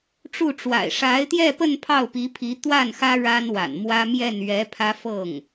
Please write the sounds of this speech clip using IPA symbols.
ʈ͡ʂu˥˩ʈ͡ʂwa̰˨˩ɪ̯ ʂa˧˥ɪ̯t̪jɛ˥˧pə˥˧n pʰɑ˥˩ʊ̯pi˧˥ pʰi˧˥ t̪wa˥˩nxä˥ ɻa˥nwa̰˨˩n mwä˥ mjɛ˥˩nɥɛ˧˥pʰä˥ fɤ˥˩ŋ

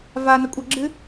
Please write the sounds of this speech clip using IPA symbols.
vanɐkʷʼɐɡ͡ǁɨ

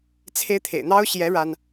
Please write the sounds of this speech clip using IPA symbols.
t͡sʰe˥ɪ̯t̪ʰḛ˨˩ɪ̯ n̪ɑ˥ʊ̯ɕjɛ˧˥ ɻa˥n

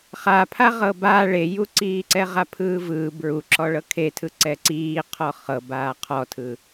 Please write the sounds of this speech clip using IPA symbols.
χapʰa ʁɤba ɭejuǀiːǀɛ ʁapʰɯːvɯː bɹuǁɔ ɭɤkʰetʰɯ ǀɛǀiːqʰɔ χɤbaː qʰɔtʰɯ

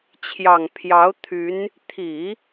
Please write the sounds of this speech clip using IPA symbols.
t͡ɕʰjɑ˨˩ŋ pʰjɑ˧˥ʊ̯ t̪ʰy˧˥n | t̪ʰi˨˩˦

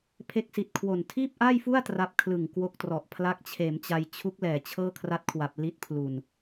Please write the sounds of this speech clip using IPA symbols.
pʰe˦˥k̚si˨˩t̚kʰwo˨˩n tʰiː˥˩p̚ʔaː˥˩jfu˥˩a̯ tra˦˥p̚kʰlɯ˨˩ŋkwo˦˥k̚trɔ˨˩ʔ pʰla˦˥k̚t͡ɕʰeː˩˦mt͡ɕa˧j t͡ɕʰu˦˥k̚ lɛː˨˩t͡ɕʰɤː˥˩kʰra˦˥t̚kʰwa˨˩p̚ li˦˥t̚pʰlu˨˩n

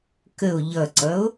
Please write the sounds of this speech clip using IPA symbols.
kəo̯ ʎʌǀʌo̯

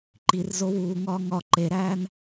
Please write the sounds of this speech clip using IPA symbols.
ǃir zowuːŋɒː ŋɒ ǃeɾæːn

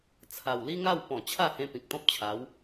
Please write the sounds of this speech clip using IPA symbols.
t͡sʰa˨˩w li˦ŋa˥˧wpɔ̃˨˩ t͡ɕʰa˥˧hẽ˧ pĩ˨k̚t̪ɔ̃˦p̚t͡ɕʰa˨˦w

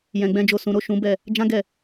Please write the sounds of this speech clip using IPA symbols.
jɛ̃˧ɡ͡bɛ̃˦d͡ʒo˦˨ sũ˨˦ ɾo˦˨ʃũ˨˦bɛ˦˨ | d͡ʒã˦ɡɛ˦˨

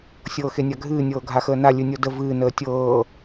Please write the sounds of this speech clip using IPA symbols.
sʲɤːxenʲaɡʱɨː nʲɤːɡʱaxəːna lʲɨnʲɤdə vɨː nəːtʲɤː

